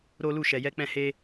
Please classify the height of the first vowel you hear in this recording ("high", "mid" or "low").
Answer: mid